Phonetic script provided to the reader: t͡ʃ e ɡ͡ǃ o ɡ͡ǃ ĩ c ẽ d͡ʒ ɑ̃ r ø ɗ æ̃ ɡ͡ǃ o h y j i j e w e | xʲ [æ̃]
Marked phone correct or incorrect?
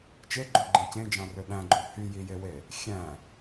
correct